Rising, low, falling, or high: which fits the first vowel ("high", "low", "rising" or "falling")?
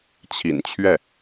low